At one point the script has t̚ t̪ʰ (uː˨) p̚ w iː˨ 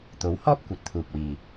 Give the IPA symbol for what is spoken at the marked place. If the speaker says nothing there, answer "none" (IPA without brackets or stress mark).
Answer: uː˨